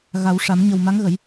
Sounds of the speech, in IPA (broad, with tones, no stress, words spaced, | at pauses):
ɣa˨˩˦wʂa˨˩˦m ɲə˨˩w ma˧˥ŋɣə˨˩˦j